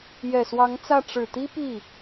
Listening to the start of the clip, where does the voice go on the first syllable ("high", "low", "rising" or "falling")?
low